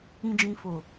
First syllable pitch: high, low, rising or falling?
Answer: low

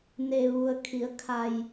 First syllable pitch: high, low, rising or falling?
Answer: low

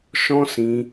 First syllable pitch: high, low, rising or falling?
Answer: high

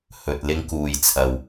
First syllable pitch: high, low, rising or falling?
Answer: low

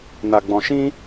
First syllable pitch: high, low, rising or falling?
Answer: low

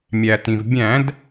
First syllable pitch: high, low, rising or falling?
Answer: low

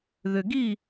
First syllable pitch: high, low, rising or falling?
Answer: low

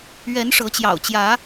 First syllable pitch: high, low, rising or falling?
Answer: rising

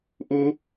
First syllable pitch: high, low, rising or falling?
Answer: high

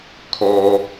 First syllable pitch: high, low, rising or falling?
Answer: low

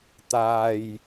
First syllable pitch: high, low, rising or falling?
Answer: low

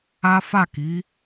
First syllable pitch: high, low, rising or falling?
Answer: high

